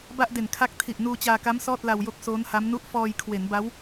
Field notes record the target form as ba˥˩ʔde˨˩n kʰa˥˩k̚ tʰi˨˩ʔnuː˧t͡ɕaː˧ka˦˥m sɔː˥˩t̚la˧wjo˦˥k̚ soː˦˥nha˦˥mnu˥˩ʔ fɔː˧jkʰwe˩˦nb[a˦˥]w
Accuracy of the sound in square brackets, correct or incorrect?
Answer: correct